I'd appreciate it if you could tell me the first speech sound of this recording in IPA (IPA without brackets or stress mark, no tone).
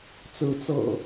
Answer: t͡s